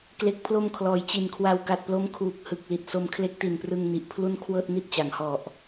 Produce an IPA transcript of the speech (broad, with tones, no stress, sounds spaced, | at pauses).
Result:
k l e˨˩ k̚ pʰ l o˧ m kʰ l ɔː˩˦ j t͡ɕ i˨˩ n kʰ w a˧ w k a˨˩ t̚ p l o˦˥ m kʰ uː˨˩ k̚ h ɯ˨˩ k̚ l i˨˩ t̚ s o˧ m kʰ l e˦˥ k̚ t i˨˩ n p r ɯ˧ ŋ n i˨˩ ʔ pʰ l u˥˩ n kʰ w ɤː˥˩ t̚ n i˥˩ t̚ t͡ɕ a˩˦ ŋ h ɔ˨˩ ʔ